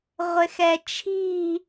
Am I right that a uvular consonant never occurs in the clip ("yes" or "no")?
no